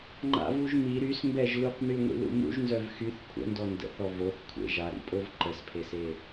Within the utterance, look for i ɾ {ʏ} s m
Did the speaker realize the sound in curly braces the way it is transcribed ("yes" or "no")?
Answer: no